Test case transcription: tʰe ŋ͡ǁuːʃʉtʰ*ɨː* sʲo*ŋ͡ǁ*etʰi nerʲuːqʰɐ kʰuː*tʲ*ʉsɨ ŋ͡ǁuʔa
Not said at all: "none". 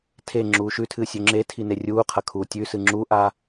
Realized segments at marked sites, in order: ɨː, ŋ͡ǁ, tʲ

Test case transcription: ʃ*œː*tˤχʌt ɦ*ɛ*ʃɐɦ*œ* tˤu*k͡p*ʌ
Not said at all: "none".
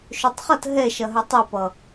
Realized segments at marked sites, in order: œ, ɛ, œ, p

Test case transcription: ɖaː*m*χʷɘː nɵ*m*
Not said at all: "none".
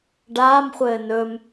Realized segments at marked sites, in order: m, m

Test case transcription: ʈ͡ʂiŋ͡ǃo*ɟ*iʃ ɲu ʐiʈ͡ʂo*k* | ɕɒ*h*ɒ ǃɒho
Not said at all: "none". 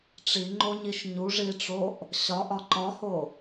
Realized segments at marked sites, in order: ɲ, ʔ, ʔ

